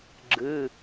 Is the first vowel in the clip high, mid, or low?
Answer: high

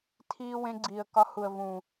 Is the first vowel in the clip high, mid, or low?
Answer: high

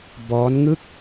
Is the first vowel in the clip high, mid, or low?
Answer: mid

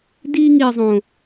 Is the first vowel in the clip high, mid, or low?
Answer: high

